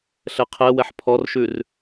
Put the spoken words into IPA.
ɬɛqʰɛ wɛħpʰɔrʃʉr

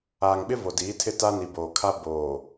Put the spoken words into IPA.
aː˨ŋɓɪ˦ vo˨diː˨˦tʰɪ˦˨ ta˦ni˨ boː˨kʰa˦ boː˨

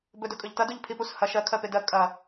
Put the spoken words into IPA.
bɵdɵkʼɵʎtɐ duʎpʰipus hɐ ʃɜ kʰɜpedɜ kʼɐ

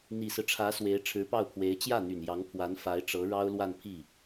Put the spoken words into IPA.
n̪i˨˩sɹ̩˦ʈ͡ʂʰä˧˥ swe˧˥ɪ̯ʈ͡ʂʰɻ̩˧˥pɑ˥˩ʊ̯pʰwe˧˥ɪ̯ t͡ɕjä˥˩n̪y˨˩njɑ˧˥ŋ pʰwa˧˥n fa˧˥ɪ̯ʈ͡ʂɤ˧˥ ɻɑ˥ʊ̯lwa˥˧npʰi˥˩

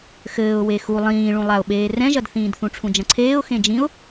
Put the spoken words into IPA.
xɘːʊ̯ wexu lˠĩːɭũlˠaʊ̯ɓeː rɛ̃ʒɐdθĩːd θũʈ͡ʂʰũd͡ʒɐ̃ǀʰeːʊ̯ xẽd͡ʒĩʊ̯

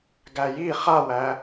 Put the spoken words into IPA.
ɡæji χawæ

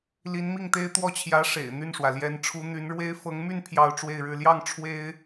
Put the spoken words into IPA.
li˧˥nmi˥˩ŋt̪e˥ɪ̯ t̪wɔ˥˩t͡ɕʰjä˧˥ ʂḛ˨˩ɪ̯n̪y˥˩nʂwä˩ ljɛ˧˥nʈ͡ʂʰu˧˥ n̪y˧˥nɻwe˥ɪ̯ fɤ˧˥ŋmy˥˧n pʰjɑ˥˧ʊ̯ ʈ͡ʂwe˥˧ɪ̯ɻɻ̩˥˧ ljɑ˥˩ŋ ʈ͡ʂʰwe˥ɪ̯

